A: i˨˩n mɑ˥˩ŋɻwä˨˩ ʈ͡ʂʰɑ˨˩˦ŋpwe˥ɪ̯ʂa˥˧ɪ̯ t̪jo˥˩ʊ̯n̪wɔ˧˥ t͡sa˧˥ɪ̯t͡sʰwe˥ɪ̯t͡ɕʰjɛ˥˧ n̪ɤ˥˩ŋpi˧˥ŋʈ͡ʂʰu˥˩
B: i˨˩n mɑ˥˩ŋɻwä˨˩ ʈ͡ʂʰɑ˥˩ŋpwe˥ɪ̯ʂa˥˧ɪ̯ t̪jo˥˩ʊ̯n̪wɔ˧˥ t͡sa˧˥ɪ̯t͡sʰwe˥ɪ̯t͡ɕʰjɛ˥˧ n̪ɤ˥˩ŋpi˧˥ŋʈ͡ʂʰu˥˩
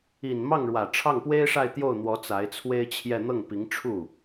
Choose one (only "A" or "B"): B